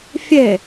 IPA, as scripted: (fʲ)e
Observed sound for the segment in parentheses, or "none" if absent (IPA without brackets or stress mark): fʲ